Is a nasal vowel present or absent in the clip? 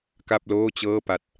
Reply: absent